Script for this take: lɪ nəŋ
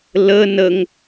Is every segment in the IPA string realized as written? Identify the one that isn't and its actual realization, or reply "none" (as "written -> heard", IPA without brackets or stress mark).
ɪ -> ə